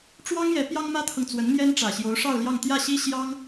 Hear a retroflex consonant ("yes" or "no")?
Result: yes